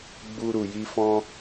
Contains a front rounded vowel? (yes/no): no